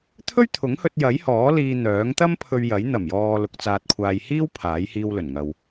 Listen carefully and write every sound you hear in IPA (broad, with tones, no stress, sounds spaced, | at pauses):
t̪ʰ ɵ˥ ɥ t̪ʰ ʊ˨˥ ŋ h ɵ˧ t̚ j ɐ˨˥ j h ɔː˨˥ l iː˧ n̪ œː˨˥ ŋ t̪ ɐ˥ m pʰ ɵ˧ ɥ j ɐ˨˥ j n̪ ɐ˨˩ m j ɔː˨ l ʊ˨ k̚ t͡s aː˨ t̚ kʷʰ aː˨ j h iː˥ w pʰ aː˨˥ j h iː˧ w l ɵ˨˩ n ŋ ɐ˨ w